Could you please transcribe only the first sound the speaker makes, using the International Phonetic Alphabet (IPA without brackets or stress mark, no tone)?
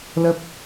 l